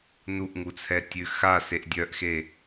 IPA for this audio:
n u ʔ ŋ u t͡sʰ ɛ tʲ ʉ x a s e ʔ dʲ œ ʔ x e

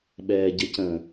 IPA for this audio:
ɓ ɛː ɟ ə c ə̃

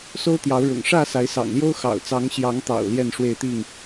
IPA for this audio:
s o˦ ʊ̯ t̪ j ɑ˨˦ ʊ̯ ɻ ʊ̰˨˩ ŋ ʂ ä˥˨ s a˨˦ ɪ̯ s ɑ̰˨˩ ŋ l j o˦ ʊ̯ x ɑ̰˨˩ ʊ̯ t͡s ɑ˨˦ ŋ ɕ j ɑ˨˦ ŋ t̪ ɑ̰˨˩ ʊ̯ l j ɛ˥˨ n ʂ w e˥˨ ɪ̯ t̪ i˥˨ ŋ

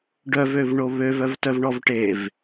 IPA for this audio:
ɖ œ v ø v ɳ o β ø v œ v t œ v ɳ ɔ v ʈ e v

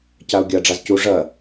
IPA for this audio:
c a ʊ̯ ɡʲ ɐ ɖ͡ʐ a z c u ʐ ɐ

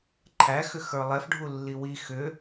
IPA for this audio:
ǃʰ æ x ʏ x ə˞ lˠ ɛ f ɖʱ u lː i w i x ʏ

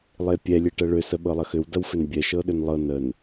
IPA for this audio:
lˠ e pʲ ɛ lʲ e ʈ ɐ ɭ ʏ s ə ɓ ɤ lˠ ɐ x ʏ w d ɐ w f ʏ n bʲ ɛ ʃ ɤ ɗ ʏ n lˠ ɤ n ə n

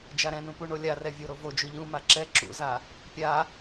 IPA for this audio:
d͡ʒ a ɾ ɛ̃ n ũ p u ɳ o lʲ a r ɛ vʲ o ɾ o v o d͡ʒ o ʎ ũ m a ǁ ɛ ǁ ṵ z a | pʲ a

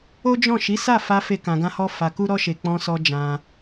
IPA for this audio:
o˦ d͡ʒ ɔ̃˦˨ ʃ i˨˦ s a˦˨ f a˧ f e˦ k ã˧ ɡ ã˦ h ɔ˦ f a˧ k u˦ ɾ ɔ˦ ʃ e˧ k͡p ɔ̃˧ s ɔ˧ d͡ʒ ã˧

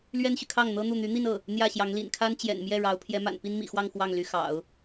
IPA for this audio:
l ɥ ɛ˥ n ɕ y˨ kʰ ɑ˥˩ ŋ n̪ ɤ˥ n̪ u˥˩ n̪ y˧˥ n̪ i˥˧ n ɤ˥˩ | n̪ j ä˥˩ ɕ j ɑ˧˥ ŋ l ḭ˨˩ n kʰ a˥ n t͡ɕ j ɛ̰˨˩ n m j ɛ˥˩ ɻ ɑ˧˥ ʊ̯ pʰ j ɛ˧˥ m a̰˨˩ n p i˥ n m ḭ˨˩ x w ɑ˥˧ ŋ x w ɑ˥˩ ŋ l y˧˥ x ɑ̰˨˩˦ ʊ̯

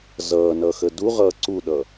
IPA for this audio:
z ʌː n ʌ x ə d u ʁ ʌː ǀ u ɗ ʌ

